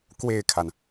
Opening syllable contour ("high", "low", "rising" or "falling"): falling